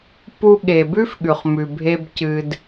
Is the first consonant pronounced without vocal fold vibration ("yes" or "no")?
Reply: yes